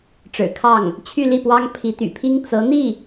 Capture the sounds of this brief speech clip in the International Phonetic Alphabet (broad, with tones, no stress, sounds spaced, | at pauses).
ʈ͡ʂ ɻ̩˨˩ kʰ ɑ˥˩ ŋ | t͡ɕʰ y˥˧ l i˥˩ p w ɑ˥ ŋ pʰ i˧˥ t̪ y̰˨˩ pʰ i˥ ŋ t͡s ɤ˧˥ n̪ i˥˩